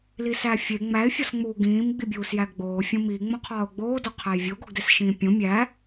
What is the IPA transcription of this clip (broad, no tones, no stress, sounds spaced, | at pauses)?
l i s æ fʲ e ŋ͡m æ ɪ̯ fʲ ɒ s ŋ͡m uː ɡ ĩː m ɡ͡b i bʲ uː s j æ ɡ ɡ͡b oː fʲ õ m i ŋ͡m õ qʰ ɒː ʊ̯ ɡ͡b oː d o qʰ æ j vʲ o ɡ o ɡ d e s ʃ ĩː pʲ õ mʲ æ